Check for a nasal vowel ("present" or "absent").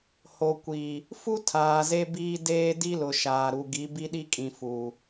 present